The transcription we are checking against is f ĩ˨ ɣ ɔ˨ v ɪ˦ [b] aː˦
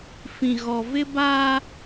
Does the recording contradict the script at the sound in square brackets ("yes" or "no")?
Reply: no